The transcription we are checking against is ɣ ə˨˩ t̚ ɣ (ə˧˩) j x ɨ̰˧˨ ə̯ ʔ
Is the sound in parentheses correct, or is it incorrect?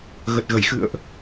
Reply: correct